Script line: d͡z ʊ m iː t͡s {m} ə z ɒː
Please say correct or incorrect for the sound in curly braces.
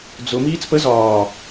incorrect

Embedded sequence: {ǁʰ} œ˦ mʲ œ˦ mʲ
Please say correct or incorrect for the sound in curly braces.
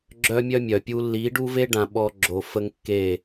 incorrect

